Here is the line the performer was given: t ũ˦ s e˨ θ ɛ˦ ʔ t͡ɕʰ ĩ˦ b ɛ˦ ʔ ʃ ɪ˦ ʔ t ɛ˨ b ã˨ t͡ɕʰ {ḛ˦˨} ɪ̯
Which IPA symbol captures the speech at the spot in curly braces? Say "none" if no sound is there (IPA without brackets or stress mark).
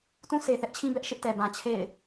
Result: ḛ˦˨